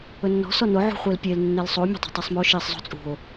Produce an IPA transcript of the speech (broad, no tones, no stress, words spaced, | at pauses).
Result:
ɵnːɔ̤ sɔno ʕṳχʷelpʲel nːelsˤuo̯ mʲe̤tˤɛ̤tˤɛsˤmo ʃisˤ zˤṳt͡sʼṳo̯